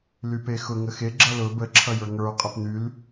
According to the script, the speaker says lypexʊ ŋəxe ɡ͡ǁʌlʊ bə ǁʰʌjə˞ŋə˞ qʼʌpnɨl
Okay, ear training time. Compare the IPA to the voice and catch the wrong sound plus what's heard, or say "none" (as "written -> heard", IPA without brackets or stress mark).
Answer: ɨ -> y